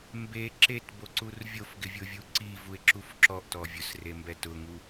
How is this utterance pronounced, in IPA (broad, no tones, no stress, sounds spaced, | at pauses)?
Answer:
m b e ǁ e t b o ǀ u r vʲ o f ɡ ɪ vʲ ʊ vʲ u ǀ i v u e̯ ǁ u f ǁ ɔ ʔ t ɔ vʲ ʊ s r e m b ɛ t ʊ ŋ u